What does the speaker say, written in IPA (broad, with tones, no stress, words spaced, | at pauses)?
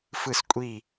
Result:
fɯ˦˨skʷʼi˦˨